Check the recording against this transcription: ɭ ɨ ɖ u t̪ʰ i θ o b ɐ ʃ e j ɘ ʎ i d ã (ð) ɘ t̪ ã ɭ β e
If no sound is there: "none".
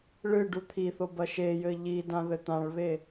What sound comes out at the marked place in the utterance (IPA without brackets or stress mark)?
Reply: ð